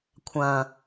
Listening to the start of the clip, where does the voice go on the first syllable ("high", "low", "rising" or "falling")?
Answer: low